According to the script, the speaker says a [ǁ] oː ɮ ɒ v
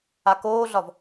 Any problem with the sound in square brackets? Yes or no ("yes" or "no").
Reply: yes